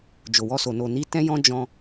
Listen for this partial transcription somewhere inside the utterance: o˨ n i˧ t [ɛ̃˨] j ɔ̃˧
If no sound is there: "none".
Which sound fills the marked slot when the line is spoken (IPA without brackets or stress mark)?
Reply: ɛ̃˧